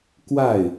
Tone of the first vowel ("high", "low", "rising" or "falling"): falling